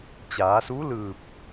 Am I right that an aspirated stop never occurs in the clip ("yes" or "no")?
yes